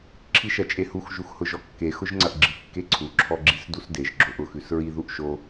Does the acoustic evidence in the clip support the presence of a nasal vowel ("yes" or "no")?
no